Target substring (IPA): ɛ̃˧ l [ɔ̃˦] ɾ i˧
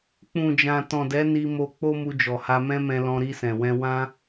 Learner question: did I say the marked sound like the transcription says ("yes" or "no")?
no